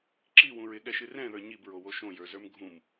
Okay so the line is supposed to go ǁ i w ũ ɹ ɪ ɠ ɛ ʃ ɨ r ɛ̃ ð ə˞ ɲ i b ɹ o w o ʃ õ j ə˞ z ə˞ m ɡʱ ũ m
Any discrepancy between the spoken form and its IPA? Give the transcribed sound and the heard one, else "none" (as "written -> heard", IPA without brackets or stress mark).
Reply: none